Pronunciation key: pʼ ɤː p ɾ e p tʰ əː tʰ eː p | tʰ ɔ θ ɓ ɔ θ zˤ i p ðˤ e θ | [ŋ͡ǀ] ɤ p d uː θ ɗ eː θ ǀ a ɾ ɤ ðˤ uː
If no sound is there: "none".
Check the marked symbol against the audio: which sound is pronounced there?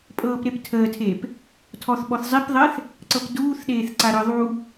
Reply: ǀ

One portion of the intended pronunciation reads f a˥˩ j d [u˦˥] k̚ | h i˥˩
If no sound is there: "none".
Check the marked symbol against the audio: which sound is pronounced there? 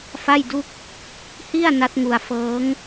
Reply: u˥˩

